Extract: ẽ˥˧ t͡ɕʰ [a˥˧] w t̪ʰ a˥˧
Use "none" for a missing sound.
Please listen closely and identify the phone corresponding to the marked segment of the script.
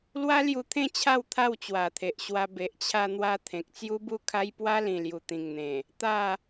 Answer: a˥˧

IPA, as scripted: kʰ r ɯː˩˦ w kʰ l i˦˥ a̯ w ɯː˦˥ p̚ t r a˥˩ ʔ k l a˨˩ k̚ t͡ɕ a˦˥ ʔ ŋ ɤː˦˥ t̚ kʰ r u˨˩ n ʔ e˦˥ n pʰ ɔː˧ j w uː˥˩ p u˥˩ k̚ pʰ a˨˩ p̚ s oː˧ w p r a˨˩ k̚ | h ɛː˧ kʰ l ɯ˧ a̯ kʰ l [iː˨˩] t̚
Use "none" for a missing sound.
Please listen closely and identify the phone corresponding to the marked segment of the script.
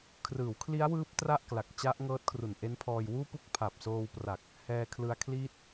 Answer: iː˥˩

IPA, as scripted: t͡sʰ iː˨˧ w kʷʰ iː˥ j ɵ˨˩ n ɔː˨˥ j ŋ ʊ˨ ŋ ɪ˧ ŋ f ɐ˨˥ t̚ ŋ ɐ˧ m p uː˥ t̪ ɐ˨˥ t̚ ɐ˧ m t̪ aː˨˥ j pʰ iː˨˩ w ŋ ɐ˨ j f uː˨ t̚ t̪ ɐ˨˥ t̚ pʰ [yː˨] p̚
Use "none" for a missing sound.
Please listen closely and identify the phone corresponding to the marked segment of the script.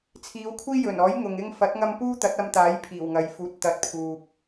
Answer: uː˨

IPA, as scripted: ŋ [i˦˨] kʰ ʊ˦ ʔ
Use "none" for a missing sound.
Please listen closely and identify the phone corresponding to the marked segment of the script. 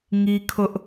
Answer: i˦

